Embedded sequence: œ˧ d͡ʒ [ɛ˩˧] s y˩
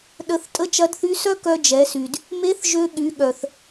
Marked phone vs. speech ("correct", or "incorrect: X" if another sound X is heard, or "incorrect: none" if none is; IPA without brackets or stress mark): correct